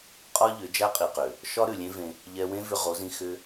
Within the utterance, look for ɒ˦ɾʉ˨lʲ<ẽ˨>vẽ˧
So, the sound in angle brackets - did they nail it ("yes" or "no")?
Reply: no